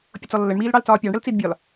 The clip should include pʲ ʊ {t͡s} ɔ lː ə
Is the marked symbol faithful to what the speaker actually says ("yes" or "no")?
yes